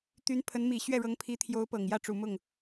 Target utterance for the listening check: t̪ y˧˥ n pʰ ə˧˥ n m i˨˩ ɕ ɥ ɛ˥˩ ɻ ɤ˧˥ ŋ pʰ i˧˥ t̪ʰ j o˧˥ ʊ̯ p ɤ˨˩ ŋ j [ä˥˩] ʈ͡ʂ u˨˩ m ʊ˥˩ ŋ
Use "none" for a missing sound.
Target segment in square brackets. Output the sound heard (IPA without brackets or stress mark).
ä˥˩